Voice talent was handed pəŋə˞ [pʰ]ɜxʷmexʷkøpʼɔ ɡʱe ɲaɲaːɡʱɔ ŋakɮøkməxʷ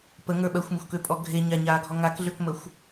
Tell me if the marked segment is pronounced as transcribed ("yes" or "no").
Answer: no